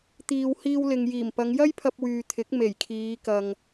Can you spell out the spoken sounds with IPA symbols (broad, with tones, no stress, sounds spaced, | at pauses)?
t̪ iː˨ w h iː˧ w l ɪ˨ ŋ j iː˨˩ m p ɐ˨˧ ŋ j ɐ˥ j pʰ ɐ˧ p̚ w yː˨ t̪ʰ ɪ˨˥ k̚ m e˨˩ j kʰ iː˨˧ k ɐ˧ ŋ